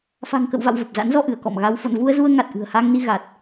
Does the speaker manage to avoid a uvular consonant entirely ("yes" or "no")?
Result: yes